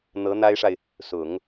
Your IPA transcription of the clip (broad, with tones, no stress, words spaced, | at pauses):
n̪ɤ˧˥n̪a˥ɪ̯ʂa˨ɪ̯ | sʊ˨˩˦ŋ